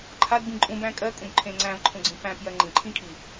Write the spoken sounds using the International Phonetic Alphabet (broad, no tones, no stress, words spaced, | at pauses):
ǃʰadbĩ ǃʼũbæ̃ kʼɜkʼũbǃʰẽ ŋ͡ǀæ̃vǃʰũɡ͡ǀĩ pæ̃pjɜ ŋ͡ǃĩǃʰĩkʰi